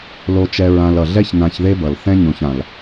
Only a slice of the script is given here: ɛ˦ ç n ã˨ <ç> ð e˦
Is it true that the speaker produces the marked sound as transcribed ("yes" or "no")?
yes